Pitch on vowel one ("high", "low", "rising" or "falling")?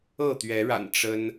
falling